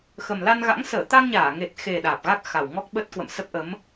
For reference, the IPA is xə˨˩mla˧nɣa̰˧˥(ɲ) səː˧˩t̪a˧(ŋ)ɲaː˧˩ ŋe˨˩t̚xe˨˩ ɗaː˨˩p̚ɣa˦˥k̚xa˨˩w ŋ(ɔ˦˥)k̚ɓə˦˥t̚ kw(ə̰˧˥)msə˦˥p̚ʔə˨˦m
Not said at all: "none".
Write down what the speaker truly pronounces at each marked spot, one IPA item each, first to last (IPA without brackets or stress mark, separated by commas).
ŋ, ŋ, ɔ˦˥, ə̰˧˨